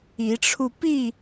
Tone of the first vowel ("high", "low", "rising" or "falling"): rising